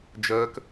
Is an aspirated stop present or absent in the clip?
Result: absent